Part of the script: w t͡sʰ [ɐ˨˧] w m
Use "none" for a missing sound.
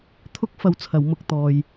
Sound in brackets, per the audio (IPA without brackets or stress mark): ɐ˨˧